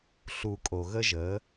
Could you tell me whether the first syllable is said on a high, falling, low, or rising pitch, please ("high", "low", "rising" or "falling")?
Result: low